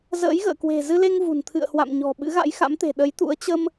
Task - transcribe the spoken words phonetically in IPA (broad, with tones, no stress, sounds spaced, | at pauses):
z ə̰ː˧˥ j ɣ ə̰ː˧˨ k w e̤˨˩ z ɨ˧ l e˧ ŋ v ṳ˨˩ n t̪ʰ ɨ̰˧˨ ə̯ h w a̰˧˨ m ɲ ɔ̤˨˩ ɓ ɨ̰˧˥ ɣ a̰˧˥ j x a̰˧˥ m t̪ e̤˨˩ ɗ ə˨˦ j t̪ ṵ˧˥ ə̯ t͡ɕ ə˧ m